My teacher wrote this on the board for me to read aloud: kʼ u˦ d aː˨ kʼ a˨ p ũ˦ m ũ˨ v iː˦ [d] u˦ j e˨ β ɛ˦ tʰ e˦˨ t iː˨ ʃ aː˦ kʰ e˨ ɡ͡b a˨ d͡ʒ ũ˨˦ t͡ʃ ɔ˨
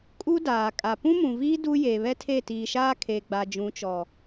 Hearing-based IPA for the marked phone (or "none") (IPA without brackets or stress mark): d